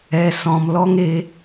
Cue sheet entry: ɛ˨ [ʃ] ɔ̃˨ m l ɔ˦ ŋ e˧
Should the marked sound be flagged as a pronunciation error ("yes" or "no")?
yes